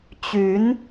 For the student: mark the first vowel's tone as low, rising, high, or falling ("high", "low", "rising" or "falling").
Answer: rising